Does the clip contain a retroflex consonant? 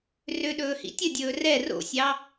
no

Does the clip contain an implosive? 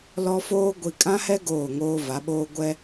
yes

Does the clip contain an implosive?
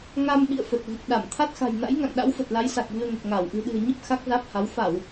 yes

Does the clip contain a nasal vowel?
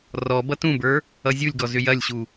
yes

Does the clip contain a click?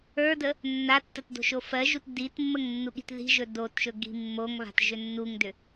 no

